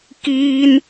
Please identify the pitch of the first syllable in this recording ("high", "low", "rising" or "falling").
high